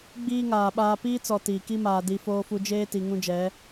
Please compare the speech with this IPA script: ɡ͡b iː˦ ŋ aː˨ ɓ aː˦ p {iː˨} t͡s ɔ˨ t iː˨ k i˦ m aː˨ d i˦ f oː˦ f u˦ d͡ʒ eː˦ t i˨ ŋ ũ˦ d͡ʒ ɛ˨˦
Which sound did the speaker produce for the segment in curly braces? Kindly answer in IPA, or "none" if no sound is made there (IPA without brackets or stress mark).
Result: iː˦